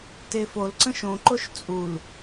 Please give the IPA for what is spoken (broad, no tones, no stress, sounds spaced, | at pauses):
t e f o l ǀ ə̃ ʃ õ ǃ o ʃ t͡sʼ u l